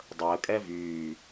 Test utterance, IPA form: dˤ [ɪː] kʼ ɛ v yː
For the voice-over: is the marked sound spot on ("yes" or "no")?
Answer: no